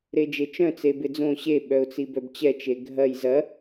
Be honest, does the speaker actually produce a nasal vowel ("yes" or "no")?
yes